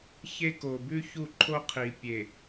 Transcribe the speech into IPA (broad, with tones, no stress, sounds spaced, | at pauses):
ç e˦ k o˨ b ʉ˦ ç u˦˨ ǃʰ o˦ qʰ i˨ pʲ e˨